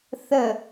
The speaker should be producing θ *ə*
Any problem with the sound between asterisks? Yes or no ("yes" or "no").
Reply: no